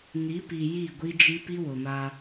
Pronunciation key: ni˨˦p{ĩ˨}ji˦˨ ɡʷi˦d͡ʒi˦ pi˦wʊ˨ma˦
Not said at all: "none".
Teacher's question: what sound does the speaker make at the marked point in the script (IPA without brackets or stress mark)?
i˨